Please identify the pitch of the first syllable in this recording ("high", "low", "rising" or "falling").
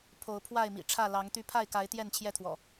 rising